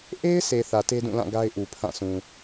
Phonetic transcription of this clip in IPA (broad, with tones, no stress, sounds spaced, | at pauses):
ʔ e˦ ɪ̯ sʰ e˨ θ ä˨ t e˦ d ũ˦˨ l ã˦˨ ɡ a˦ ɪ̯ ʔ u˨ pʰ ã˦˨ sʰ ũ˨